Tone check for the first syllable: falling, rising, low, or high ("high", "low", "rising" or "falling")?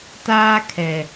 high